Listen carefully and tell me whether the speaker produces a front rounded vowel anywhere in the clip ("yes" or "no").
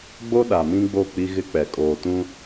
no